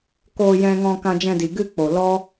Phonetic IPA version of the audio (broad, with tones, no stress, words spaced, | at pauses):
koː˧jɛ̃˧ŋɔ̃˧ kã˧d͡ʒɛ̃˧di˨ɡɨ˦˨ k͡po˨lɔ˦